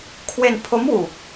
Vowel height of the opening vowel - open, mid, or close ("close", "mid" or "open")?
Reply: mid